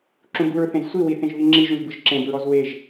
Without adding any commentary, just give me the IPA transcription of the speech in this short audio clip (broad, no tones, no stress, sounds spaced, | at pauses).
ǁ ũ b u ɹ θ ẽ z sʷ i w i θ ẽ ʒ β i ŋ͡ǁ i ʒ ũ ʒ b ɯ ʒ ǁ ẽ b ɹ ɔ z w e ʒ